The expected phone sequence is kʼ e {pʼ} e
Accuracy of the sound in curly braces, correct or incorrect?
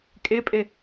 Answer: correct